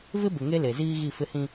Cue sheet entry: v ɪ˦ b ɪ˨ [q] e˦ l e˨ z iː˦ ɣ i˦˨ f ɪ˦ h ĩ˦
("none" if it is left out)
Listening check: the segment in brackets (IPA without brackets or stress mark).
ŋ